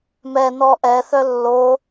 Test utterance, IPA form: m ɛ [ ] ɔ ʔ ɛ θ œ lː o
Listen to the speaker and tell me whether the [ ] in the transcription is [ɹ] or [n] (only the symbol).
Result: n